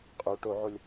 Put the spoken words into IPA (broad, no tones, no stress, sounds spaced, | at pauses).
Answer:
qʼ u ʈ o ʕ o lʲ